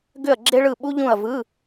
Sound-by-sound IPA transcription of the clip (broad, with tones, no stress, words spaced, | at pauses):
ɡʏ˥˨ɐ̯ɡ͡ǁe˥ɭɯ˥˨ ɓu˥ʎũ˥˨ɐ̯ vɯ˧˥˧